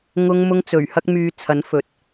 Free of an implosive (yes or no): yes